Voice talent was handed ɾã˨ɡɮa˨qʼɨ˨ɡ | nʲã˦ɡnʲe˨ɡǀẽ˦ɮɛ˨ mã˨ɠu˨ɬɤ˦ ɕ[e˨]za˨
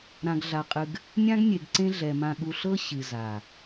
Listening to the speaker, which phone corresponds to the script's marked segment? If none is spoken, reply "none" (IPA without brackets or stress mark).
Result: ɨ˨